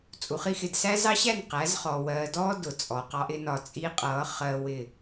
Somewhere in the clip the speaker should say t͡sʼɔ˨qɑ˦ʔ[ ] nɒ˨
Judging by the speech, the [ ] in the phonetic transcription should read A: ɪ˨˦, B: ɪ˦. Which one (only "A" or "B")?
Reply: A